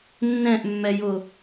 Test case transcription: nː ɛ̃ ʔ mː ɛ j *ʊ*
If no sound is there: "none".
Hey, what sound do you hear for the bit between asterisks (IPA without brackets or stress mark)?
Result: ʊ